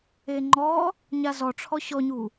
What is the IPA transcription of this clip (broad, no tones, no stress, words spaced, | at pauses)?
eŋ͡ǃɔ | ɲazɔʈ͡ʂʰɔ ɕɔɲu